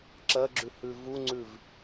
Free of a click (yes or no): no